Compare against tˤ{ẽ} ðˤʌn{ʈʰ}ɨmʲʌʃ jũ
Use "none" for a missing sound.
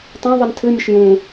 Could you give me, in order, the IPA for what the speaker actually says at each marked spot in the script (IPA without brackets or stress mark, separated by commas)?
ẽ, tʰ